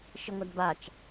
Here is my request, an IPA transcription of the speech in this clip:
ʃɪŋʷadbat͡ʃ

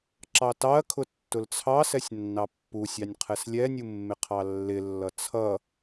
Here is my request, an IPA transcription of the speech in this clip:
ǁɑtɑɐ̯kʰʊ tːʊlt͡sʰɑsɛsʲ nːɑpːusʲɑnʲ qʰɛslʲɛnʲu mːɪqʰɑlːɪlːʌ t͡sʰʌ

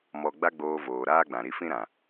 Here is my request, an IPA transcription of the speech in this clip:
mɔ˧ ɡ͡ba˦ɡ͡boː˧voː˨ ɾaː˦ɡ͡bã˨ɾi˧fĩ˦ ɾã˨

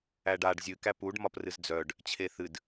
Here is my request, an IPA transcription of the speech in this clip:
æɖaɖ zʲɨ kæpuɖ mɒprɨzd͡zœɖ | t͡ɕʰeθɨd

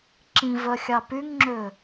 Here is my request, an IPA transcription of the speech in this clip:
ǁĩvœxʲɑ pyŋŋ͡ǁø

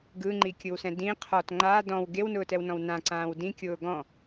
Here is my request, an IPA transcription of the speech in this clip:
ɡɯŋ͡ǃikʲɯwsɛ̃ dĩ qʰɔt ŋ͡ǃaː dɔ̃w ɡewnʊːtɛwnɔ̃w nãǀãːw dĩkʲʊː ɡɔ̃

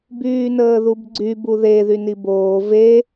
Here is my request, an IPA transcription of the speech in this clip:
byːnəːðubɡ͡ǀy buðe ðyniboː ve

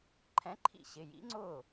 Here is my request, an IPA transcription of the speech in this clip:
ǃʰɛ̃˨˥ǃʰḭ˧˩ ɕɪ˩˧˩jḭ˨˥ŋ͡ǀʊː˥˩

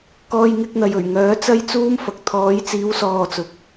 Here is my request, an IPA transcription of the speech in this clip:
kɔː˧jŋɪ˧k̚n̪ɐ˨j ɵ˨˩ɥŋœː˨˥ t͡sɐ˥jt͡suː˥mfɐ˨k̚ t̪ʰɔː˨˥jt͡siː˨˥w sɔː˧t͡sʊ˨˥k̚

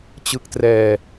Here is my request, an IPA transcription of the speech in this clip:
t͡ɕɯ˦˥k̚trɛː˧

